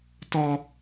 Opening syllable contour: high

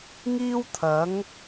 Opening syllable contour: high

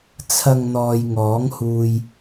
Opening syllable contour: low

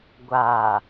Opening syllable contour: low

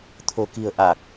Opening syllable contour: low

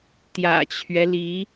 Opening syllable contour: low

